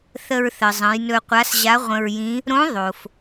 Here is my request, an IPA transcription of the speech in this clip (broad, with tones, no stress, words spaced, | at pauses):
θə˧ɹθə˩zˤə̃˩˧j nɵ˧qʷa˧˥sʑa˧˥ ʁʷə̃˧ɹjĩ˧˥ | ɾõ˧˥ ðˤo˩f